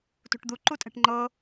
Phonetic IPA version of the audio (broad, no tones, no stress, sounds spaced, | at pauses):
t ṳ ʈ d̪ u ǃ u tʼ ɛ̤ ʈ ŋ͡ǃ ɤ